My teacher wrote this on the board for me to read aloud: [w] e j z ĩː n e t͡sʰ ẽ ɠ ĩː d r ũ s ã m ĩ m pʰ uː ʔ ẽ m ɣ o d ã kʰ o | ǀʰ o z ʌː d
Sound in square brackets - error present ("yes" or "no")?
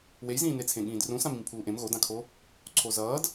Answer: no